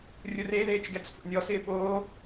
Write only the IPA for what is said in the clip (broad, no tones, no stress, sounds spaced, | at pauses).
rʲ ʊ r e ð eː t͡ʃ ɡ ɛ t͡s f o̰ nʲ ɔ s ɪː ɓ oː